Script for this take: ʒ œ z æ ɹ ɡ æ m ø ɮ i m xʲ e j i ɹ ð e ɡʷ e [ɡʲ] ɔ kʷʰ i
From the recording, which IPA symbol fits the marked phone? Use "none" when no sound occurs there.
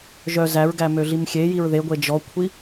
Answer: d͡ʒ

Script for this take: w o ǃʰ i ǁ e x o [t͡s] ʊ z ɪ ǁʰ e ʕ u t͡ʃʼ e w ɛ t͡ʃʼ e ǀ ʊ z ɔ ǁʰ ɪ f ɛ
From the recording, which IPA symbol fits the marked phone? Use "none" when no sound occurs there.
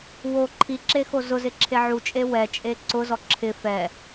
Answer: z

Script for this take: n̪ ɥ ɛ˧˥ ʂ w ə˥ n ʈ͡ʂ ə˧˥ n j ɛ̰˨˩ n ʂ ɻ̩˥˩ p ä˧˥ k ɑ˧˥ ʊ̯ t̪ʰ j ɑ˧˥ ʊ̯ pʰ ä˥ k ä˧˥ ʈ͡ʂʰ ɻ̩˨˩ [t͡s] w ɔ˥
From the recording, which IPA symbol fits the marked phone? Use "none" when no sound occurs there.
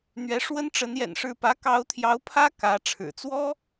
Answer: t͡s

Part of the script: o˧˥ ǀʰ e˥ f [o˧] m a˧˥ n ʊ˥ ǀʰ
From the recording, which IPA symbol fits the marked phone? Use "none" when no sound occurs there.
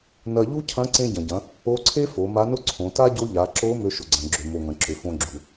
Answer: o˩˧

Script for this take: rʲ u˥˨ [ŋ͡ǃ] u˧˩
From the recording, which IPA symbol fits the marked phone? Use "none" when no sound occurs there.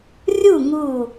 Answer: ŋ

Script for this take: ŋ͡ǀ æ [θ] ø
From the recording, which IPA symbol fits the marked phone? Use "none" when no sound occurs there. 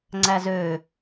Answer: z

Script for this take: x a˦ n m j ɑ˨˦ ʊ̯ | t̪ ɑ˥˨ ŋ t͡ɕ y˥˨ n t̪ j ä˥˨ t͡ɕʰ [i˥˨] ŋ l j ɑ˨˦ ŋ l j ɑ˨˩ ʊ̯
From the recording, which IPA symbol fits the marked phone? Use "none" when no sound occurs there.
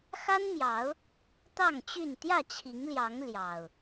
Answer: i˨˦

